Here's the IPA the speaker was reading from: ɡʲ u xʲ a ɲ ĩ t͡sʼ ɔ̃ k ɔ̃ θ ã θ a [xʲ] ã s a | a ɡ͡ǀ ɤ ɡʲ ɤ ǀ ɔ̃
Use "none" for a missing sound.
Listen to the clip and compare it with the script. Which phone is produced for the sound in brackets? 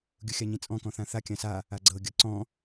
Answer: kʲ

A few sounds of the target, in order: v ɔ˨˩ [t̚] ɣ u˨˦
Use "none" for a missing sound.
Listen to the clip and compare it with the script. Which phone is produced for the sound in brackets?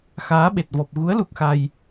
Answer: p̚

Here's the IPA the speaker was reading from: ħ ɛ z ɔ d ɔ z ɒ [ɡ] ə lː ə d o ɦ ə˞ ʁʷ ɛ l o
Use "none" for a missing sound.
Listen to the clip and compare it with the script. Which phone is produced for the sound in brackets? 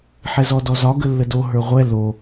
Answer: ɡ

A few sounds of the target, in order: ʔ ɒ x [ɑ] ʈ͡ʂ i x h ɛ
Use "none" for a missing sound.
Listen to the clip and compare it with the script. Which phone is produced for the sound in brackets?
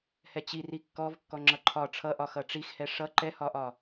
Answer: ʌ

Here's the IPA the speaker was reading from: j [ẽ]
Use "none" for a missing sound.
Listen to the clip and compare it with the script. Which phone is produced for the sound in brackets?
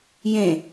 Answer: ẽ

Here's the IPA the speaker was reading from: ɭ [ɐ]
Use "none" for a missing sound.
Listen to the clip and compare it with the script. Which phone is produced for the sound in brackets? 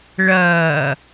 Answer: ɐː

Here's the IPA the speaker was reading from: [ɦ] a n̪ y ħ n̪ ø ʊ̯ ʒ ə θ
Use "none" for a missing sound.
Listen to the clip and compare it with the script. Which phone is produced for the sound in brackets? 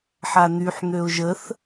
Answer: ħ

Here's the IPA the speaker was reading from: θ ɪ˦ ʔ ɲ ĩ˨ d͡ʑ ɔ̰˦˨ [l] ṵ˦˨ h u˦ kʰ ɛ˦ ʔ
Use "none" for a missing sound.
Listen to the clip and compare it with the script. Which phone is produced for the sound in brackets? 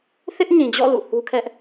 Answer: l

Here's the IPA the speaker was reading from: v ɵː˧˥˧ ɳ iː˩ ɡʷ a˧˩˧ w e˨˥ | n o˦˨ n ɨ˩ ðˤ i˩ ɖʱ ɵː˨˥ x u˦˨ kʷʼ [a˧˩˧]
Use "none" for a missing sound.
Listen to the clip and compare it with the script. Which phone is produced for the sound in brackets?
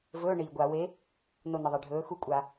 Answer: a˧˩˧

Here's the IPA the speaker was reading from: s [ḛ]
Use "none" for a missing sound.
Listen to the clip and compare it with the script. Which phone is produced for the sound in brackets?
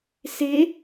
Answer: e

